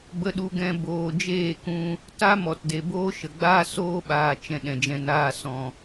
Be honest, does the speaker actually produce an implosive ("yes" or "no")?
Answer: yes